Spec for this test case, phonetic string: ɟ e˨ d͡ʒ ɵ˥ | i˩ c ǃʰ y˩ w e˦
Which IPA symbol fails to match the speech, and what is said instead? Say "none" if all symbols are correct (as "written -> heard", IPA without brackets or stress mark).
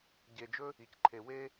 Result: y˩ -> e˩